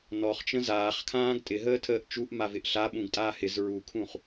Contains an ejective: yes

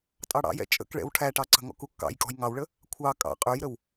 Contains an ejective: yes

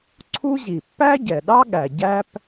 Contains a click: yes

